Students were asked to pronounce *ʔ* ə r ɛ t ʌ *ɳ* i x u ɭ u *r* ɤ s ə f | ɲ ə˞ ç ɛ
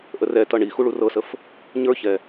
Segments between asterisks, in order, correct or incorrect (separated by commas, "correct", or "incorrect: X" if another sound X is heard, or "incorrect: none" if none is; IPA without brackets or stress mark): correct, correct, correct